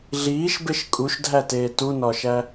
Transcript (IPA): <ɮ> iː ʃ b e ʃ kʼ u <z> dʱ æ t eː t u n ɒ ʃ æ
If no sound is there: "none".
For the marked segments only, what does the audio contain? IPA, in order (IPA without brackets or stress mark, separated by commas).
ɮ, ʃ